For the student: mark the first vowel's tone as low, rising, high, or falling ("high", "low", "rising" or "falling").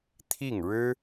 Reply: falling